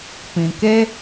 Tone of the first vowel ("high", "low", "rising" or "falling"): low